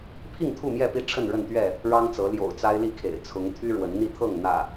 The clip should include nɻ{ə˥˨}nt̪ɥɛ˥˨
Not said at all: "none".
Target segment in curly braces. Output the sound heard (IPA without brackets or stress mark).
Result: ə˥˨